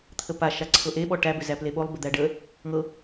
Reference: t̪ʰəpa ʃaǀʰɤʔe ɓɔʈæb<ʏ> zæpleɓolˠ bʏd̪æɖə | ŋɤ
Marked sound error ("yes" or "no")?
no